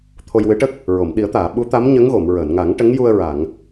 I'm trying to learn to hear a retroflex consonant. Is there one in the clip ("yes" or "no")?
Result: yes